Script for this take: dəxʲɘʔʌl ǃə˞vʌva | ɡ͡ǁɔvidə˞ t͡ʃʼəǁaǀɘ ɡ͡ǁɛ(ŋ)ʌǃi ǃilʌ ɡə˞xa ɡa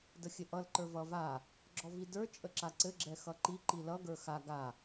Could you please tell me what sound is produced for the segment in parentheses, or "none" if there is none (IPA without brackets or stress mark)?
x